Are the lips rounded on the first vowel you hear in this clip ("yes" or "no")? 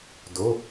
yes